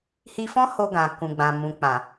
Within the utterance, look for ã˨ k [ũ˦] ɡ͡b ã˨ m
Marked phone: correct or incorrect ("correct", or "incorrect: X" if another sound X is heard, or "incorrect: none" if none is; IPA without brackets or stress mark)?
incorrect: ũ˨